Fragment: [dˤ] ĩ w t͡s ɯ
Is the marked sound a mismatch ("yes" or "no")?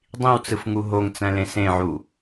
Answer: no